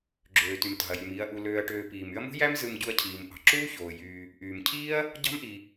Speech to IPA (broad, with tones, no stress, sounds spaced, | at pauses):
ɡ͡ǁ øː˩ t y˩ m t ɑ̤˩ ɐ̯ j y˩ m iː˨ ɐ̯ ʔ u˨ l øː˨ ɐ̯ ʈ øː˨ p iː˩ m y˦ ɐ̯ m ṳ˥ j æ˦ m z ɯ˨ m ɟ u˨ ɐ̯ cʰ iː˩ m ʔ ɑ̤˩ ǁ uː˥ ç oː˩ j yː˨ | ʔ yː˩ m cʰ iː˥ ɐ̯ | ɟ ɑ̤˥ m ʔ i˨